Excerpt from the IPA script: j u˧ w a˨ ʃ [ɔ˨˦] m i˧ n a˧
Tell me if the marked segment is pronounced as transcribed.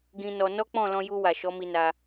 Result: yes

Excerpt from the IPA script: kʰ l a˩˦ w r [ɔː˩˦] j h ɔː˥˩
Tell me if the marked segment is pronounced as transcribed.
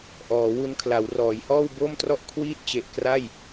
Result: yes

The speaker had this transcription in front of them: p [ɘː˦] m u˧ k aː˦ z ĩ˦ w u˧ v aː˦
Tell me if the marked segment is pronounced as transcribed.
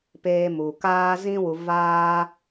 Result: no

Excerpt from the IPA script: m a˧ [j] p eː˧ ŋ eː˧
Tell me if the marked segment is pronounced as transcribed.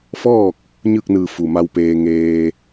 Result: no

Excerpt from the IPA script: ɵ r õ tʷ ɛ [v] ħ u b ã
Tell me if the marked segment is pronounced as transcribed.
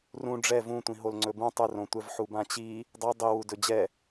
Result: yes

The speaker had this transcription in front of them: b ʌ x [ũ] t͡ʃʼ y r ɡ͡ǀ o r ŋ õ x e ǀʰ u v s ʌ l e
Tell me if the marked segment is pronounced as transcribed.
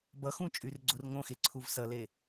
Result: yes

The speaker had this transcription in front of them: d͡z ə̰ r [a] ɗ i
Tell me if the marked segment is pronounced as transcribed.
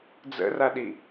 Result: yes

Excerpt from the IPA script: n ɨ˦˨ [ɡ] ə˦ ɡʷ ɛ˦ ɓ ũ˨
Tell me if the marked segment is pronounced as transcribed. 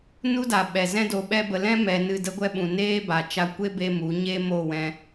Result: no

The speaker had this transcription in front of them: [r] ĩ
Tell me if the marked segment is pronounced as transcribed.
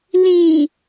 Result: no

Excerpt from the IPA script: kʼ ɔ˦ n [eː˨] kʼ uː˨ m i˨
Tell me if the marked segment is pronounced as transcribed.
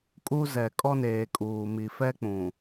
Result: yes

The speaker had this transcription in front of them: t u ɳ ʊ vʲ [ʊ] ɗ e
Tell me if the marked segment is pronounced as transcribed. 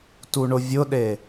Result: yes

